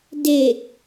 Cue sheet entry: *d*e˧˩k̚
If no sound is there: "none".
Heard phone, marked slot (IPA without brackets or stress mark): d